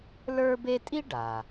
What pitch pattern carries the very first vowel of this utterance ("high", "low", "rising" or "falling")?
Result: high